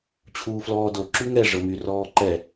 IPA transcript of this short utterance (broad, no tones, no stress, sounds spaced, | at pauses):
t͡ɕʰ uː f l ɔː d o ǁ y ŋ ɛ ʐ ɤ m y r ɔː ǃ ɛ